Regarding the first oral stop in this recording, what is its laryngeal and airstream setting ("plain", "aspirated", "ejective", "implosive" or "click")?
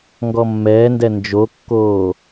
plain